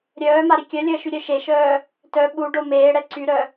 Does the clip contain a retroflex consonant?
yes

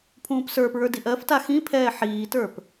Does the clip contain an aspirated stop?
yes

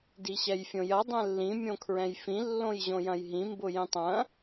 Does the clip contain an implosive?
no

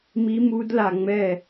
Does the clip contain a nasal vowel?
no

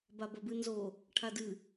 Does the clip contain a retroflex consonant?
yes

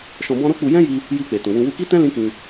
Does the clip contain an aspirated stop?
no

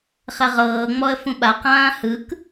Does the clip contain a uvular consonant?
yes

